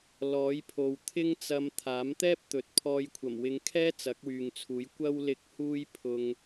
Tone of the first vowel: rising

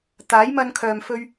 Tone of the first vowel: rising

